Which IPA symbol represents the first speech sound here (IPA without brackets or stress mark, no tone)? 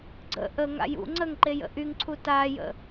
ɡ͡ǀ